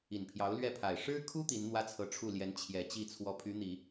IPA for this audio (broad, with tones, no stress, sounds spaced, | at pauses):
i˨˩ n pʰ j ɑ˧˥ ʊ̯ l ɥ ɛ˥˩ pʰ a˨˩ ɪ̯ ʂ ɻ̩˥ kʰ u˥ t̪ i˧˥ n n̪ w ä˥ t͡sʰ ɤ˧˥ ʈ͡ʂʰ u˥˩ l j ɛ˧˥ n t͡ɕʰ j ɛ˨˩ t͡ɕ i˥˧ t͡sʰ w ɔ˥˩ pʰ y˧˥ n̪ i˨˩˦